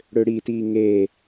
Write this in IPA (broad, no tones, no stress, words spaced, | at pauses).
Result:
ɽøɽitiː ŋeː